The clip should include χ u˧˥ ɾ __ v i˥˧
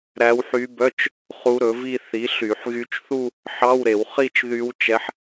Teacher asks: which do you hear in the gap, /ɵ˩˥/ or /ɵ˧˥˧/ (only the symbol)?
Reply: ɵ˩˥